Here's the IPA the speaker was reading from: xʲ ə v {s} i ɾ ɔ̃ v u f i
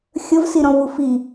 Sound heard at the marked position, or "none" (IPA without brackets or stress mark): s